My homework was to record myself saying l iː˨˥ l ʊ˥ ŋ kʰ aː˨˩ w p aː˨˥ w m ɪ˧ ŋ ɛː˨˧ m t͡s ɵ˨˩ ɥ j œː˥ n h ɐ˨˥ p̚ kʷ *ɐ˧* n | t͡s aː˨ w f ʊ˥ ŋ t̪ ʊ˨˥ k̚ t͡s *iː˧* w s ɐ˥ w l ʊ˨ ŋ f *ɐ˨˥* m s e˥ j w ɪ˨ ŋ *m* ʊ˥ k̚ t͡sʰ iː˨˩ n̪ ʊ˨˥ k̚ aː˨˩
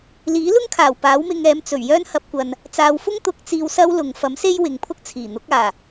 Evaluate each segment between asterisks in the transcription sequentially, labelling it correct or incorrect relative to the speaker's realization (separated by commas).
incorrect, correct, correct, incorrect